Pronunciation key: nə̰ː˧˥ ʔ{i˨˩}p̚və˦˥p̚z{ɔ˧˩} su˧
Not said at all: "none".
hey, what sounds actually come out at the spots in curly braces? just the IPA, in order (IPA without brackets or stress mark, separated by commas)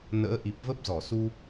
i˨˩, ɔ˧˩